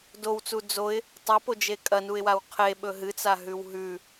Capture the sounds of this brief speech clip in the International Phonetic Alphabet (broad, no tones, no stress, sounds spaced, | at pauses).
d o w t͡s u d͡z o ɪ̯ | tˤ ɐ p o d͡ʒ e kʼ ɐ n u ɪ̯ w a w qʰ e ɓ ɵ ɦ ɨ t͡s a ɦ ʉ w ɦ ʉ